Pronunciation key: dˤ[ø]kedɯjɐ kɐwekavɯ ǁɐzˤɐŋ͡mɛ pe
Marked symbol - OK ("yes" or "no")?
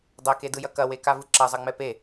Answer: no